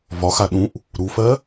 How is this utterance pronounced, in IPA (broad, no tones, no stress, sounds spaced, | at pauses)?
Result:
v ɒ x a ɗ ũ ʔ | ɾ u f ɜ